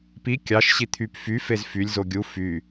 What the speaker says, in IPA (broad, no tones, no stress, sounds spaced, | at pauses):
p i kʲ ɑ ʃ ɕ i t̪ʰ y p f y f e z f y lʲ z o ɡʲ u f y